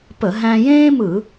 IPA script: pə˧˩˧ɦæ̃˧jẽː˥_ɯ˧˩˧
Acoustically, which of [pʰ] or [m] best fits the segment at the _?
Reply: m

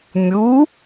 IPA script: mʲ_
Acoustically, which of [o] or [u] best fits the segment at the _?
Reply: u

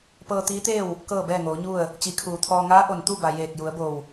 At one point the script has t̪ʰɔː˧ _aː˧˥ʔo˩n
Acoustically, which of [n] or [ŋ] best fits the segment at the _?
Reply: ŋ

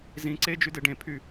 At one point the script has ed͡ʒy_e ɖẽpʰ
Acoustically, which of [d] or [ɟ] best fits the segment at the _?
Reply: d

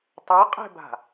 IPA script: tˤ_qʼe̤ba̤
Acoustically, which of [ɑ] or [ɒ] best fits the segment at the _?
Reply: ɑ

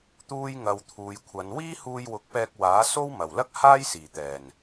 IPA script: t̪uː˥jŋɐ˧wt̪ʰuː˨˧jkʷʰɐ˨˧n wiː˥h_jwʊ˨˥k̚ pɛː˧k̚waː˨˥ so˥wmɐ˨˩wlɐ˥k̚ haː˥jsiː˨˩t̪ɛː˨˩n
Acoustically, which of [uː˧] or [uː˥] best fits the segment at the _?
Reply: uː˧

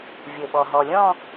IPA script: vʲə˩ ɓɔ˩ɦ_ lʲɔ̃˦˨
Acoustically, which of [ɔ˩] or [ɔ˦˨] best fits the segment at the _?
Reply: ɔ˩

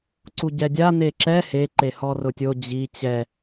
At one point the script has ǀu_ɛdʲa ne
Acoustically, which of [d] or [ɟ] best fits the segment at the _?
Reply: ɟ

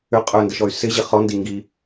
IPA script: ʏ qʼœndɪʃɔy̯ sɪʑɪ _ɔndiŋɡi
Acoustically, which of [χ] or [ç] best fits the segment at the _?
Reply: χ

